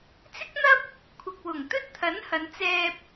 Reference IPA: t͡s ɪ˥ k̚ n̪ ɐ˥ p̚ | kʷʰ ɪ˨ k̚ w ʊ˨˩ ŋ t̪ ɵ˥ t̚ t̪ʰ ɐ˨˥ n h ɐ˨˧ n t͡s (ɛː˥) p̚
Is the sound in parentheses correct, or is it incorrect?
incorrect